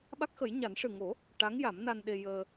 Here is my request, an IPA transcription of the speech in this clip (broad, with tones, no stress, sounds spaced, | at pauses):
ɓ a˦˥ k̚ x ə˨˩˦ j ɲ a˨˩˦ n ʂ ɨ˨˩ ŋ o˨˩˦ | ʈ a˧˥ ŋ j a˨˩˦ m n a˧ n ɗ e˧ j əː˧